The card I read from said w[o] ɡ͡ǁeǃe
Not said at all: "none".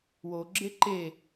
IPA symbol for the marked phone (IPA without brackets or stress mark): o